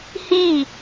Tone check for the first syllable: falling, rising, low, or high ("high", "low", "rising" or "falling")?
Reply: falling